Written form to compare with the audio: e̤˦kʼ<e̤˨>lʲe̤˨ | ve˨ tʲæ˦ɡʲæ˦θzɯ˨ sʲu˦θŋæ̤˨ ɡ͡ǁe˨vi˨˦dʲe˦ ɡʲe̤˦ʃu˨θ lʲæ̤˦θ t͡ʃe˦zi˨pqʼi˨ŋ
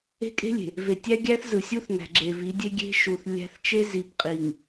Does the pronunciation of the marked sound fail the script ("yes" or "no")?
yes